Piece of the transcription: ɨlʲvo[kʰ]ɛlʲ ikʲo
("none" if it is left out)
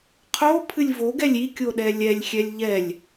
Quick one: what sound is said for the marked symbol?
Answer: ɡ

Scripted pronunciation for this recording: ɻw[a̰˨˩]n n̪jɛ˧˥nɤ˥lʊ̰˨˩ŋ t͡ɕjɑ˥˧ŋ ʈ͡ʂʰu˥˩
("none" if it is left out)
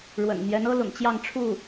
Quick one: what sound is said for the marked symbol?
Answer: ə̰˨˩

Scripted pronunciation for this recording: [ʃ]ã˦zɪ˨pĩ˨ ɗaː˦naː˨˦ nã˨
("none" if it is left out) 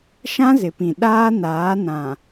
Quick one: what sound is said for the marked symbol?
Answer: ʃ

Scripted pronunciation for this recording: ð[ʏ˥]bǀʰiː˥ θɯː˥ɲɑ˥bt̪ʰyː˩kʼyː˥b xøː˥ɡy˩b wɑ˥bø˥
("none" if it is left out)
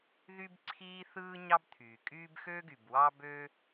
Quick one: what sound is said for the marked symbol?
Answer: y˥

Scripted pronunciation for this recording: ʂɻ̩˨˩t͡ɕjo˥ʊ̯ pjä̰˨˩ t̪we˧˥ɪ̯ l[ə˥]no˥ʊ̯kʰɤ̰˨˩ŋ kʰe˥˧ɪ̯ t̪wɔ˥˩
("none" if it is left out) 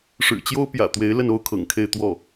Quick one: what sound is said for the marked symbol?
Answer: ə˥˩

